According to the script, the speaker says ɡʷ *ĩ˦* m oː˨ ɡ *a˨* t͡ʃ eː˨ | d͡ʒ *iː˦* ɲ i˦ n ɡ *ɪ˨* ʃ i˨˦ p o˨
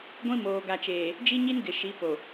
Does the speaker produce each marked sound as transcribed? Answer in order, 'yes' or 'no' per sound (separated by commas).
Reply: yes, yes, no, yes